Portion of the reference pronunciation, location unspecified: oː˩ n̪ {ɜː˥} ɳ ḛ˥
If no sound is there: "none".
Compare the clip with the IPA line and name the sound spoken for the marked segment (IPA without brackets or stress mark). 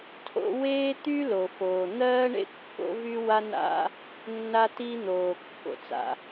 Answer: ɜː˥